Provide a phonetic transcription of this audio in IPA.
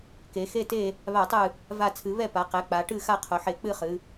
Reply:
k e˩˧ x e˥˨ t e˥˨ | β a˧˩˧ tˤ ɨ˧˩ | v a˧˩ t͡sʰ ɨ˩˧ β ɛ˥˨ p a˩˧ q ɛ˩˧ k͡p a˩˧ ʈ ɨ˥˨ x a˥˨ qʰ o˩˧ ħ e˧˩˧ k͡p ɨ˥˨ χ ɨ˩˧

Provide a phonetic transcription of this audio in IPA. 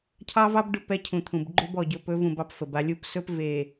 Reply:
cʰ ɑ˦ v ɑ˦ b ɖ ɵ˦˨ p ɛ˦ cʰ ũ˨ t̪ʰ ũ˨ b ɡ͡ǃ ʏ˦ b ɔ˨ ɟ ɵ˨ p ɵ˨˦ v ũ˨ b ɑ˦ p f ə˨ b a˦ lʲ u˨ p s ɵ˦ p v e˨

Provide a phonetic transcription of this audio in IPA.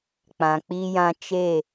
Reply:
k͡p ã˨ k͡p iː˦ j ã˦ t͡ʃ eː˦˨

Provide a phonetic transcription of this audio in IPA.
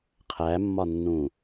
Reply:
qʰ æ mː ɒ nː ũ

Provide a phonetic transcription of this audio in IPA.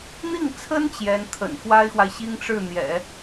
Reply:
n̪ i˥˩ ŋ t͡sʰ ə˥ n t͡ɕ j ɛ˧˥ n t̪ʰ ə̰˨˩ n x w a˥ ɪ̯ x w a˨ ɪ̯ ɕ i˥ ŋ ʈ͡ʂ ɻ̩˥˩ n̪ j ɛ̰˨˩˦

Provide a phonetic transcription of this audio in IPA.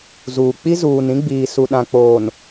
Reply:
z uː˨ k͡p i˦ z uː˨ n ĩ˦ ɡ͡b iː˨ s u˨ ɗ ã˨ k͡p oː˨ n

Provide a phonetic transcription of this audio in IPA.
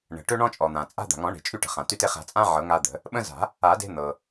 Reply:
ɳ ə̤˩ ʈ ø˦ ɳ ɔ̃˦ t͡ʃʼ ɔ˩ n̪ ã˩ t͡sʼ a̤˦ d̪ a̤˩ ŋ ɔ̃˨˩˦ ɳ e̤˩ t͡ʃʼ y˦ ʈ ə̤˩ χ ã˩ t y˦ t e˦ χ a̤˨˩˦ t͡sʼ ã˦ ʕ ɤ˨˩˦ ŋ a˦ d̪ ə̤˨˩˦ | ɓ ə̃˦ z a̤˨˩˦ | a˨˩˦ d e̤˦ n̪ ɤ˩

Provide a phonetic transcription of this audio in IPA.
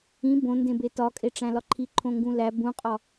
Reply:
ĩ b õ n d ẽ b e t ɒ kʼ e ʈ͡ʂ æ̃ l ɒ ǃʰ i ǃʰ õ ŋ ɡ ũ l æ b ũ qʼ ɒ

